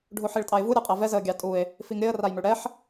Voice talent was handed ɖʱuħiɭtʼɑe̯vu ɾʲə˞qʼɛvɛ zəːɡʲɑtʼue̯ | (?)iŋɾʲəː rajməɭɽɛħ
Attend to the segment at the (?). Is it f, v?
f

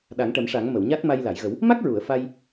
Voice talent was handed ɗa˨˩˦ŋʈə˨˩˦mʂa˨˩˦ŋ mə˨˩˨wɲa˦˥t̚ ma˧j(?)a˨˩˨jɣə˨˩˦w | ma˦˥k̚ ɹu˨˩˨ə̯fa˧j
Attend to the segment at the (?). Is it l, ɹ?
l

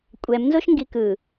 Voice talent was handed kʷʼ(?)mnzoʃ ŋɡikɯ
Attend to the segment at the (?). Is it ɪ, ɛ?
ɛ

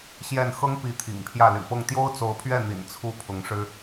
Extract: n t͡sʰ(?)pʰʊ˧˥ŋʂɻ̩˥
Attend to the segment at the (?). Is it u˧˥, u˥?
u˥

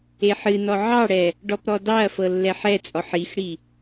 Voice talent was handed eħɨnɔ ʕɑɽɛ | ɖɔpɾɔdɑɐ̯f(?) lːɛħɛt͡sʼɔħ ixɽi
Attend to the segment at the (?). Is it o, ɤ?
ɤ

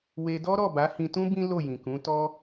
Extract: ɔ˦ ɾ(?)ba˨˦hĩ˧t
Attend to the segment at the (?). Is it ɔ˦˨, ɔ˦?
ɔ˦˨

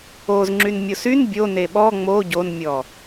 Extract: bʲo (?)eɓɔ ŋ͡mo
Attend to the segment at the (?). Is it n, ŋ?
n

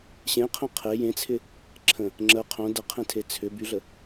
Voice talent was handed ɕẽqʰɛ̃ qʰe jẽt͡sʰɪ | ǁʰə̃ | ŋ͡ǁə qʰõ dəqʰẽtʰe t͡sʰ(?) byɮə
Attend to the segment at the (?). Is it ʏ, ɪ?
ʏ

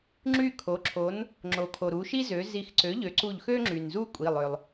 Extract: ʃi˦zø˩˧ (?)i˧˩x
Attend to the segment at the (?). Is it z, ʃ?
z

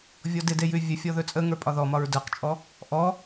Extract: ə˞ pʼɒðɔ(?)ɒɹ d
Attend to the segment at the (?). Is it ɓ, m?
m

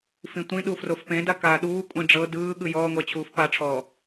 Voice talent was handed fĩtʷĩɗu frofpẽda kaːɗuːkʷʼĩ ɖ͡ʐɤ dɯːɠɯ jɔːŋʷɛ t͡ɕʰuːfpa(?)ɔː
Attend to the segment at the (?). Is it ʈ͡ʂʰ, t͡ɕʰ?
ʈ͡ʂʰ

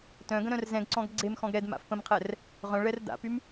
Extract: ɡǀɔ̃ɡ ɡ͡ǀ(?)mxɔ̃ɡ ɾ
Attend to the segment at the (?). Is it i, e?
e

